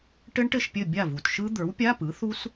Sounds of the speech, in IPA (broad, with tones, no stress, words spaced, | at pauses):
ʈɘ˦˥ɳʈɘ˥˩ʃpʲɘ˥˩ bʲa˥˩vu˨˩tʃɯ˦˥ d̪ə˞˩˥wpʲa˧˥˧pɯ˩˥ θu˦˥s